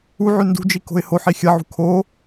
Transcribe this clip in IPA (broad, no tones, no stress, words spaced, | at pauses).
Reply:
uʕʉ ndṳd͡ʒi ko̤ɪ̯hoħi xʲɐʕṳ kʰo